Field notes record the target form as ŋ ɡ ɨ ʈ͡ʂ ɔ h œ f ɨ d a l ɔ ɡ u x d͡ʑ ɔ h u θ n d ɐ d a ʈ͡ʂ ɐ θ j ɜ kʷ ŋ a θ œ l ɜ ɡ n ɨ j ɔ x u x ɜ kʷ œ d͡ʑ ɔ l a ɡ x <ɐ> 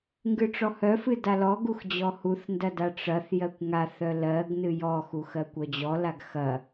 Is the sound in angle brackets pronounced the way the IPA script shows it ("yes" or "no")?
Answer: yes